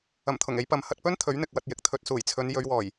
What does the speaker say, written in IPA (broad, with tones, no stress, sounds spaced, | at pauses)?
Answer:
ɐ˨˩ m t̪ʰ ʊ˨˩ ŋ e˨˧ j p ɐ˨ m h ɐ˧ t̚ p ɵ˥ n t̪ʰ ɵ˨˥ ɥ n̪ ɪ˨ k̚ w ɐ˧ t̚ j ɪ˨ k̚ t̪ʰ ɵ˧ t̚ s uː˨˩ j t͡sʰ ɵ˨˧ n j ɵ˨˧ ɥ w ɔː˨˩ j